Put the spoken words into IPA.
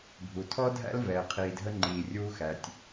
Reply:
bʱ u˩ tʰ ɔ˥ dʱ æ̰˥ l v ɛː˩ qʰ iː˩ dʱ ə˧ ŋ͡ǃ iː˩ rʲ uː˧ x æ˩ tʲ

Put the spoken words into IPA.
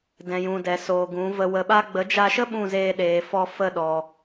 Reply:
d ɛ̃˨ j ũ˨ d ɛ˨ s oː˨ ɡ ũ˨˦ v ə˧ w ə˧ ɓ a˦ ɡ͡b ə˨˦ d͡ʒ a˧ ʃ ə˦ ɓ ũ˦˨ z eː˧ ɗ eː˨ f ɔ˧ f ə˦˨ ɗ ɔ˨

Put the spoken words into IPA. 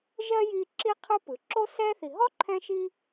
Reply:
ʒ ɜ˥ j i˦ ǁ i˥ qʰ ɯ˦ p ɯ˩ ǁ o˥ s ɛ˥ θ i˨ ɦ ɔ˥ ǃʰ ɛ̃˦ ʃ i˦

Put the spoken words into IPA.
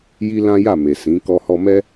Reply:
j i˦ l ã˦ j a˦˨ m e˨ s ĩ˨˦ k ɔ˧ h ɔ˧ m ɛ˦

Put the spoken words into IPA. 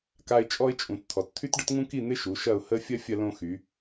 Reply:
k a˦ ɪ̯ t͡ʃʼ ɔ˦ ɪ̯ t͡ʃʼ ũ˩˧˩ t t̪ʰ ɔ˩˧ t t̪ʰ y˦ t ɖ ə˦ t ŋ ũ˦ k i˦˨ n̪ ɪ˦ ʃ u˩˧ ʃ ɐ˦˨ ʊ̯ h ə˦ fʲ ɐ˦ fʲ ɐ˦ l õ˦ x y˩˧

